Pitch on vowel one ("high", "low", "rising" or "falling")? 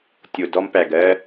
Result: low